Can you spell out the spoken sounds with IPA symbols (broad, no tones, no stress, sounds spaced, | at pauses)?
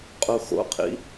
qʼ u x o̰ qʰ ḭ